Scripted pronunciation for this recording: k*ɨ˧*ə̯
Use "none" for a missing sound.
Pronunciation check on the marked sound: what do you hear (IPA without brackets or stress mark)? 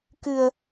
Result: ɨ˧